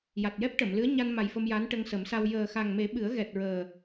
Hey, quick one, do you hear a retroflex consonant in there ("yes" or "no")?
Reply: yes